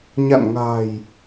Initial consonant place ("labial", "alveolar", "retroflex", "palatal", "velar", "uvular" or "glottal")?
palatal